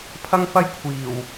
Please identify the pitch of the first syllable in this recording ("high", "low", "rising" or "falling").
high